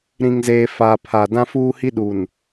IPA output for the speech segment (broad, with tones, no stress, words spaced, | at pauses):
ɾĩ˨ŋzeː˨ faː˨pʰaː˨ dã˦fuː˦hi˦ ɗu˨n